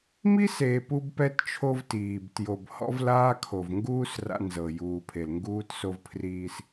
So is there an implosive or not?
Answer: no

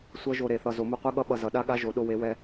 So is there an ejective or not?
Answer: no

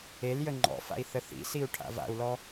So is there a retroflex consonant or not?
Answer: yes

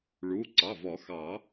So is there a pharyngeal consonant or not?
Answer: no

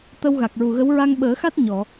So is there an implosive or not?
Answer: yes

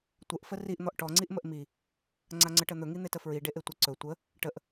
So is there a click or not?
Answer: yes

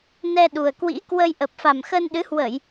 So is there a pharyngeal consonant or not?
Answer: no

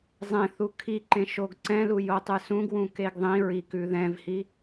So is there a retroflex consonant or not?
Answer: no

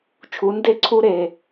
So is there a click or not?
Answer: yes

